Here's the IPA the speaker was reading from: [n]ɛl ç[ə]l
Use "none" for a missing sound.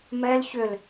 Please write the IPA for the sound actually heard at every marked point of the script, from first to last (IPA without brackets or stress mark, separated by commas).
m, ʏ